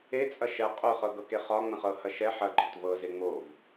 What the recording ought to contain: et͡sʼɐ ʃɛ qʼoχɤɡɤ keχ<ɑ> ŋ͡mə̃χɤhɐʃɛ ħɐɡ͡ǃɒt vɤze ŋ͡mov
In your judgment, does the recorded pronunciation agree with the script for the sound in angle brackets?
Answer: no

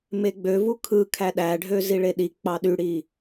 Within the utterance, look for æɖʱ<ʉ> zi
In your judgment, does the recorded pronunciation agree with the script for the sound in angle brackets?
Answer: no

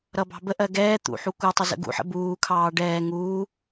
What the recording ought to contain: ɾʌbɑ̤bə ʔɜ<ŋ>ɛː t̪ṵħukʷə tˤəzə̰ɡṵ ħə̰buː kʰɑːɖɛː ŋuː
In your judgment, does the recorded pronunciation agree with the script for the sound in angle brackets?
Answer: no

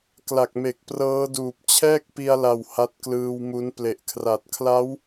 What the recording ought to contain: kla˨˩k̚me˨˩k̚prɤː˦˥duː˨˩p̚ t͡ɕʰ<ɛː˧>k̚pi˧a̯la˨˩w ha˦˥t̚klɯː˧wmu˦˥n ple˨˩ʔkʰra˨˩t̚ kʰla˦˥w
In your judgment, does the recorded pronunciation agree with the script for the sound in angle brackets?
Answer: no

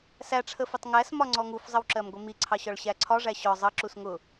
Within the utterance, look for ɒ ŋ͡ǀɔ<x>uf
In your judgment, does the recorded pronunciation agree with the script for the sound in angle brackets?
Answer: no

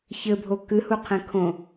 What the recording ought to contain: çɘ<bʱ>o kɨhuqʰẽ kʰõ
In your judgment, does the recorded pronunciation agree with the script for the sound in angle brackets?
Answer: yes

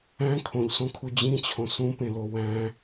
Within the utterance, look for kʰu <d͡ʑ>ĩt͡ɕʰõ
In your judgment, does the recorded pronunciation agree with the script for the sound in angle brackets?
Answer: yes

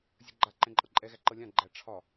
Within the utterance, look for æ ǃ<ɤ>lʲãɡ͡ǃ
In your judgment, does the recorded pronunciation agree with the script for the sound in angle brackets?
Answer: yes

